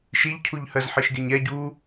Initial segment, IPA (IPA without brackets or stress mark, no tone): ʃ